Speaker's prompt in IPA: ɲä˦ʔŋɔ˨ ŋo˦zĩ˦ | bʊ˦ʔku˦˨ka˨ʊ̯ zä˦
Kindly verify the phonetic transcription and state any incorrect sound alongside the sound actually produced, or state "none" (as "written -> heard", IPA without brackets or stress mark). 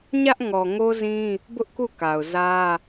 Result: none